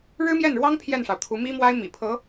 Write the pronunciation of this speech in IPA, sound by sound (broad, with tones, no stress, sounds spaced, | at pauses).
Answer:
ɻ ɻ̩˥ m j ɛ˥˩ n ɻ w ɑ˥ ŋ pʰ j ɛ˥˩ n ʂ ɑ˩ ʊ̯ t̪ʰ u˧˥ m i˥ m w a˥ ɪ̯ m ḭ˨˩ pʰ ɤ˧˥